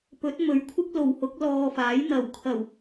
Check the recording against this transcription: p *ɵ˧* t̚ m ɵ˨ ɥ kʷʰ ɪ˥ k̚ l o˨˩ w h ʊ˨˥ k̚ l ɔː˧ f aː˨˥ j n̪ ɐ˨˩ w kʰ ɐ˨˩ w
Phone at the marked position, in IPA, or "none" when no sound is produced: ɵ˨˥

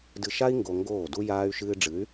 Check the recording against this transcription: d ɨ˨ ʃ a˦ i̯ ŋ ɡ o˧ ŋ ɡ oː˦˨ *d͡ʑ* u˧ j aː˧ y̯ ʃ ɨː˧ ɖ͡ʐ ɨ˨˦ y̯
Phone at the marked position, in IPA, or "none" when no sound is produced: d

